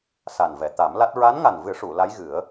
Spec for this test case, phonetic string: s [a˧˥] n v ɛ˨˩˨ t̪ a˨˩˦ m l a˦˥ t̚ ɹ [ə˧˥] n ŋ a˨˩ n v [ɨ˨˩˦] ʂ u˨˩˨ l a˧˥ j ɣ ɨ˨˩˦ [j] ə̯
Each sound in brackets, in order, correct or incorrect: incorrect: a˨˩, incorrect: a˧˥, correct, incorrect: none

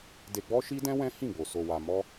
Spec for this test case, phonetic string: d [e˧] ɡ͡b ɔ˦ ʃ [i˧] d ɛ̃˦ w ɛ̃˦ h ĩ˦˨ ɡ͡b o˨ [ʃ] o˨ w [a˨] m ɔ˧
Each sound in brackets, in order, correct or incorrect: correct, incorrect: i˦, incorrect: s, correct

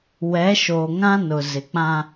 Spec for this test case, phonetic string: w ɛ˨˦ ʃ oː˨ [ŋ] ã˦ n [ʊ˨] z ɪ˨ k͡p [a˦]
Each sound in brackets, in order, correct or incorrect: correct, correct, incorrect: ã˦

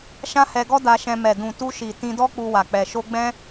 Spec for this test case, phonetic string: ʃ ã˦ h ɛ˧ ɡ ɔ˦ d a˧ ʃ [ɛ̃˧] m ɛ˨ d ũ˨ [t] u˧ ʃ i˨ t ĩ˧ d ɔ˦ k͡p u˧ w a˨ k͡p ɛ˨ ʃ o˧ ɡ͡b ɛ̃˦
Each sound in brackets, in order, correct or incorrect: correct, correct

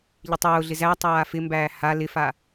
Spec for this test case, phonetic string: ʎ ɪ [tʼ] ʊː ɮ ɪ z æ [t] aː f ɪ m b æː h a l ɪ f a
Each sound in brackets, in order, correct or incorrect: incorrect: tˤ, incorrect: tˤ

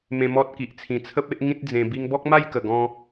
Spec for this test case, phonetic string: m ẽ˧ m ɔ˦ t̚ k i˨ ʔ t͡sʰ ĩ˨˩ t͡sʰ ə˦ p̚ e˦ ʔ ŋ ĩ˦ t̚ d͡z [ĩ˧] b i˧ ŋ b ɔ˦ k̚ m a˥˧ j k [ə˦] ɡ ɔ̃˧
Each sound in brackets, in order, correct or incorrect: incorrect: ẽ˧, incorrect: ə˨˩

